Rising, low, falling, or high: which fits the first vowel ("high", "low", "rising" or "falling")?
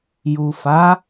low